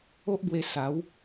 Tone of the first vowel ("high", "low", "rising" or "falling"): high